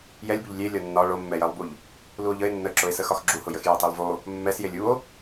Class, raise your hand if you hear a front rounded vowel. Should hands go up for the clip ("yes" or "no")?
no